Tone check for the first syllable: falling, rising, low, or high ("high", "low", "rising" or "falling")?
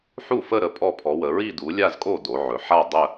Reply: falling